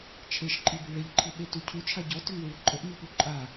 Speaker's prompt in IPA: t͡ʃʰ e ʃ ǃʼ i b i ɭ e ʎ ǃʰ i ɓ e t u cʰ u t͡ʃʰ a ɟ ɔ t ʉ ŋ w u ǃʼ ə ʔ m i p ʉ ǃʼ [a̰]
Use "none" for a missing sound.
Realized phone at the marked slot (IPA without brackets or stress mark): a